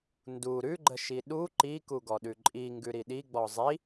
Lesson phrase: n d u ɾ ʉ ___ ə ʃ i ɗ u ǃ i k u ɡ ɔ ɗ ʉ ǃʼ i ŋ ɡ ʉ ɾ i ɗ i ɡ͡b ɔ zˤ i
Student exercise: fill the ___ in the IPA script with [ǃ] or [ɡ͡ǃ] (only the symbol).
ɡ͡ǃ